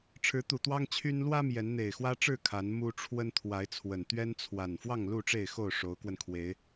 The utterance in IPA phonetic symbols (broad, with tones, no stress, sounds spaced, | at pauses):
ʈ͡ʂʰ ɻ̩˨˦ t̪ u˨˩ t̪ w ɑ˦ ŋ t͡ɕʰ y˦ n l w ä˦ m j ɛ˨˦ n n̪ e˨˩ ɪ̯ x w ä˦ ʈ͡ʂ ɻ̩˥˨ kʰ a˨˦ n m u˦ ʈ͡ʂʰ w ə˦ n t̪ʰ w a˨˦ ɪ̯ t͡sʰ w ə˨˩ n t̪ ɥ ɛ˦ n t͡sʰ w a˨˩ n f w ɑ˥˨ ŋ l u˥˨ ʈ͡ʂ e˥˨ ɪ̯ x o˥˨ ʊ̯ ʂ o˨˦ ʊ̯ k w ə˧ n kʰ w e˨˦ ɪ̯